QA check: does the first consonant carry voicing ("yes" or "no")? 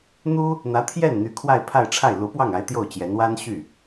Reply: yes